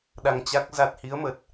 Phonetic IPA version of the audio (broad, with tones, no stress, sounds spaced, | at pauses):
ɗ a˧ ŋ t͡ɕ a˦˥ k̚ z a˦˥ t̚ h i˨˦ ə̯ m ə˨˩ t̚